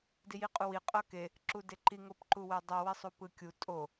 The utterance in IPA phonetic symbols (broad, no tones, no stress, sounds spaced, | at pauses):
d i j i qʼ u w i qʼ ʌ k e | ǁ u d e ǃ i ŋ o p ǃ u w e dˤ ʌ w i sˤ u p ɯ kʲ u tʼ o